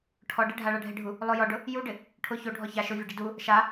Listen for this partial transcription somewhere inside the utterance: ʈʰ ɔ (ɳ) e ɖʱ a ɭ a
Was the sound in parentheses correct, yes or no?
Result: no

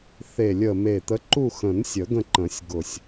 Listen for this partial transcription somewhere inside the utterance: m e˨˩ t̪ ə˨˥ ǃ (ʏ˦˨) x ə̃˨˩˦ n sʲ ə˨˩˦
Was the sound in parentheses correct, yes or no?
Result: no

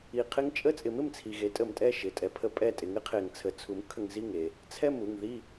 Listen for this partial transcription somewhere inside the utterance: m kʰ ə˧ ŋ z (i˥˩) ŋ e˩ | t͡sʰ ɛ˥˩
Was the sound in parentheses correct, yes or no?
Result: yes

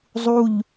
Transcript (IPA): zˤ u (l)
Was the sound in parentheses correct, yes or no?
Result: no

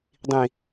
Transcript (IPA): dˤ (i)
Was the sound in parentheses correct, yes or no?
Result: no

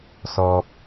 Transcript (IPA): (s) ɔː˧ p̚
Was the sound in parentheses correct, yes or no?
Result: yes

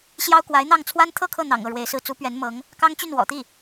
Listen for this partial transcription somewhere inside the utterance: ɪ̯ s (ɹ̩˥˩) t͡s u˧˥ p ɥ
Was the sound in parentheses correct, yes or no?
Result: yes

